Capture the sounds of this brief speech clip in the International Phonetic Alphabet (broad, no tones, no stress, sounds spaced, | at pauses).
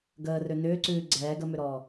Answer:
ɡ əː r ø n ʏː ǀ ʉː ɡ͡ǀ ɛː ɡ ə m ø ɾ ɔː